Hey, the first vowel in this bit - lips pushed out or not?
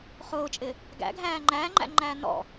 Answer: yes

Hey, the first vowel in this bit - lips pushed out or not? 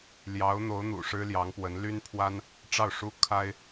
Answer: no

